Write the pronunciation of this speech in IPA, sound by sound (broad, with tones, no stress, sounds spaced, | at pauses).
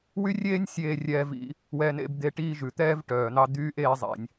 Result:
w y˥ rʲ eː˥ nʲ sʲ eː˧ rʲ ɛː˧ v ḭ˧ | w ɛ˧ n ḛ˧ b d̪ e˧ ʈ iː˥ ʒ ʉ˩ t̪ ɛː˥ v ʈ œː˩ n̪ ɑ˧ d̪ yː˥ ʔ eː˧ zˤ ɛ̰˩ nʲ